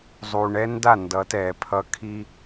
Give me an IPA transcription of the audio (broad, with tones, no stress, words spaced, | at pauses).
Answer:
zˤu˨ɳɛ˦nda˦˨ ndʌ˨˦tɛː˨pʰʌ˦ kʰi˦